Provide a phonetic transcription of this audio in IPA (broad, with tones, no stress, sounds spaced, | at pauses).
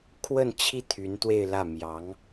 kʰ w ə˥˧ n t͡ɕʰ i˥˩ t̪ʰ y˧˥ n t̪ w e˥˧ ɪ̯ l ä˥˩ m j ɑ˧˥ ŋ